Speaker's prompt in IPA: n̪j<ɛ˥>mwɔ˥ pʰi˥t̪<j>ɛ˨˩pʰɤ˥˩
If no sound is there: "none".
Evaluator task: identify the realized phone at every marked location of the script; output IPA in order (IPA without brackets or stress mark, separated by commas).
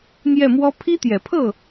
ɛ˥˩, j